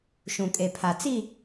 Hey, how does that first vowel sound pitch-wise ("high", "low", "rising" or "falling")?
low